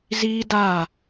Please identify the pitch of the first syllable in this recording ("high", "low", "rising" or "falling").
high